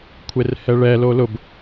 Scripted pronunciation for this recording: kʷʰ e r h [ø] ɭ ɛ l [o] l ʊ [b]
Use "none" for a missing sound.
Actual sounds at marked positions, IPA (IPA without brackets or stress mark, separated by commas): ɛ, o, b